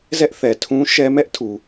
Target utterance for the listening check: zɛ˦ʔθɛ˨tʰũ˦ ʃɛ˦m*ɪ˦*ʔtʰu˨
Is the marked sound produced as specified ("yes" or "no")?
no